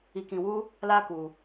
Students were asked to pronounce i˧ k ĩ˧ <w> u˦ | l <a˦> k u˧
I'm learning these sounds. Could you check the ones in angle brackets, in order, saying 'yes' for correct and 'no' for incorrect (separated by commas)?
yes, yes